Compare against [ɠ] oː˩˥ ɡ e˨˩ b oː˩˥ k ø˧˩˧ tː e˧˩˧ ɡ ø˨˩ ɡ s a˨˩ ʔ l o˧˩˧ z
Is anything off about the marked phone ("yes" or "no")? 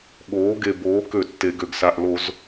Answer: no